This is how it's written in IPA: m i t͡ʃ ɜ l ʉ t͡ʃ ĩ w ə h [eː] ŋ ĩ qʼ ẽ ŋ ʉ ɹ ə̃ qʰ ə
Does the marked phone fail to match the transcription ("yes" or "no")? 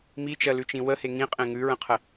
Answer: yes